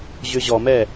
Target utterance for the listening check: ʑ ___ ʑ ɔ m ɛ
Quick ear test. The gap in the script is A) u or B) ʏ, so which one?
B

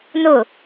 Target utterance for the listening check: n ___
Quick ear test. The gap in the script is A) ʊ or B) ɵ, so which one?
A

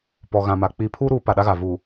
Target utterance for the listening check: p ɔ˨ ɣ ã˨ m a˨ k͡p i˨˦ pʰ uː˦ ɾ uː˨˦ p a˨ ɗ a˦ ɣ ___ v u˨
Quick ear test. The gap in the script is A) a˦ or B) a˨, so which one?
B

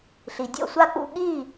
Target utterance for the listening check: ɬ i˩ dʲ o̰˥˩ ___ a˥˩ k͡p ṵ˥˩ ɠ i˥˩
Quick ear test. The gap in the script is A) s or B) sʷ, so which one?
B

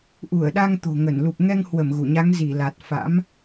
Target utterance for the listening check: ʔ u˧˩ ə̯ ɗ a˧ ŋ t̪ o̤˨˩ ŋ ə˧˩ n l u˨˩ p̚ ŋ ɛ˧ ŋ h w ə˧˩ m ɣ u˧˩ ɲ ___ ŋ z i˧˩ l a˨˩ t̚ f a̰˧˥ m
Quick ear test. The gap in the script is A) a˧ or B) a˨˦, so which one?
B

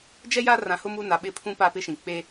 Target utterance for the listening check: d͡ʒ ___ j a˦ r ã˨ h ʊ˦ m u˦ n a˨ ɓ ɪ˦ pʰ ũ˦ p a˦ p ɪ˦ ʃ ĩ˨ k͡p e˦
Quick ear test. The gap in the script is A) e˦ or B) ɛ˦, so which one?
B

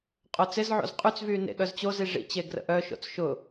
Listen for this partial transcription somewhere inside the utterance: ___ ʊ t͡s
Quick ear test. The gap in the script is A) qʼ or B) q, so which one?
A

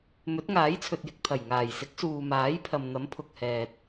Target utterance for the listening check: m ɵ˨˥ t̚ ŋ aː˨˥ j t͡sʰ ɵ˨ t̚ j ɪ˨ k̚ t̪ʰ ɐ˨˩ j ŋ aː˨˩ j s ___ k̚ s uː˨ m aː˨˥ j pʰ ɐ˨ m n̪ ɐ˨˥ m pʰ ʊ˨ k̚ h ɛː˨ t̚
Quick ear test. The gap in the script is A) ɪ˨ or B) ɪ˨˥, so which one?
B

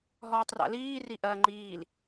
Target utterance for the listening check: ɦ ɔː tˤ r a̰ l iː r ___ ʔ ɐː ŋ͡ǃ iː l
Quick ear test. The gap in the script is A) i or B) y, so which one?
A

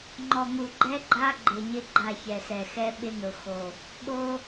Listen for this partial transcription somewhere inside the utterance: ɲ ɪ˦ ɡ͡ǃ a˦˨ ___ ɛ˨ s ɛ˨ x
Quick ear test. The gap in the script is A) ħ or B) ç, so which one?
B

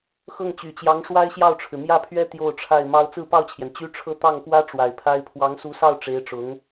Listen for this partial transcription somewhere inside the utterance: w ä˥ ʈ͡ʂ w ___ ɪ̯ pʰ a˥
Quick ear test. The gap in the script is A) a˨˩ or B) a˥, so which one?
A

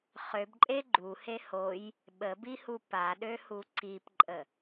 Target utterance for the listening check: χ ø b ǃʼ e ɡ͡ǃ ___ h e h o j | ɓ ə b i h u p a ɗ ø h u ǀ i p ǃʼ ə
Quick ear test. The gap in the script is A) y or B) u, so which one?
B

